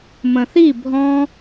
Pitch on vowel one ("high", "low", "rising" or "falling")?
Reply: low